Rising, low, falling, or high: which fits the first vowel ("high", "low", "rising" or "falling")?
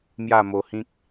falling